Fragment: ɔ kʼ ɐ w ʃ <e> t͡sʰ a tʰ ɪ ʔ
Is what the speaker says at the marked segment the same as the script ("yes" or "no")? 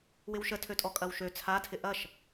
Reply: no